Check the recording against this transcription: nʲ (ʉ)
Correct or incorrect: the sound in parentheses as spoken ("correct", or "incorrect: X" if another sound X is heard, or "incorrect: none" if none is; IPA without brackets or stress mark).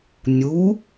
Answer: incorrect: u